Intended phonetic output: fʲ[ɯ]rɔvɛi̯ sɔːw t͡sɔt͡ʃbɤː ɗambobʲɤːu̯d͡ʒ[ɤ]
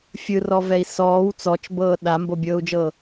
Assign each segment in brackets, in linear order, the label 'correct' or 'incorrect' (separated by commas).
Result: correct, correct